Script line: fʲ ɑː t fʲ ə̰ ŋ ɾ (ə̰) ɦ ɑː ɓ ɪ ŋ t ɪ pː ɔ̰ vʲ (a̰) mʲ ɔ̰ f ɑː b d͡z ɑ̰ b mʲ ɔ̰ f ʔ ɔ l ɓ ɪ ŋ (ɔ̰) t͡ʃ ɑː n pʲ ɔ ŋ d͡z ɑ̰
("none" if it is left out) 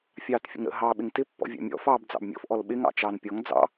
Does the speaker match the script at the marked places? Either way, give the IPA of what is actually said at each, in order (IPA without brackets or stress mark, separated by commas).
ə̰, ɑ̰, ɑ̰